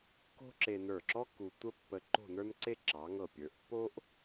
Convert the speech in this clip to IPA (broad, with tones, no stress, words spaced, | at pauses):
ko̤˥ǁe˧nə˞˧˩ǁɔ˥ ku˧ tʷə˥pːə˧ ǃo̤˥˧nə˞˥nǀe˥ ǁɑ˩˧ŋɤ˧˩ pʲə˞˩˧ʔpːo˥ʔ